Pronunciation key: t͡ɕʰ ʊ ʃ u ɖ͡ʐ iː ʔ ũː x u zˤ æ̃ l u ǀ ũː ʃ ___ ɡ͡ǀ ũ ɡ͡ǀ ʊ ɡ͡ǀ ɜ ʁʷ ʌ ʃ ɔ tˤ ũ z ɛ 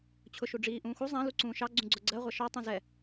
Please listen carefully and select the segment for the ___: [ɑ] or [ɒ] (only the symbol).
ɑ